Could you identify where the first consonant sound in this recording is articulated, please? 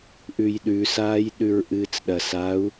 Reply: glottal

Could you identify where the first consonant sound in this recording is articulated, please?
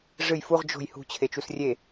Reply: retroflex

